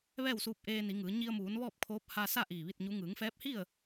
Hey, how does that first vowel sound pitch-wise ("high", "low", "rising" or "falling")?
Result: falling